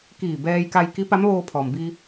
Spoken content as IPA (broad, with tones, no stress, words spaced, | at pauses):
kiː˧˩bɛː˧jka˧j ki˧˥ pa˧˥mʋoː˧ pʰɔː˩mbiː˧